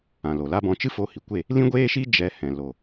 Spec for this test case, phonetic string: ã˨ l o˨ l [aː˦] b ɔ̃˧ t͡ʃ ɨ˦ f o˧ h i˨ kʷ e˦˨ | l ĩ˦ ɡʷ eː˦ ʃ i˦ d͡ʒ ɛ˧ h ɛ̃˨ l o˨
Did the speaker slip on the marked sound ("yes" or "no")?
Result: yes